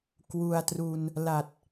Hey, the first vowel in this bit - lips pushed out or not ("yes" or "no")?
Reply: yes